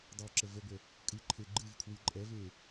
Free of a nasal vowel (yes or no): yes